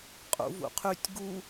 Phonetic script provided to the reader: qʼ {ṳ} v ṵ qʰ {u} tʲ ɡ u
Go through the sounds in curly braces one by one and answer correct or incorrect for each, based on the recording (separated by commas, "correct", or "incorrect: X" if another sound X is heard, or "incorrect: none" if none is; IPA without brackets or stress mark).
incorrect: ṵ, incorrect: y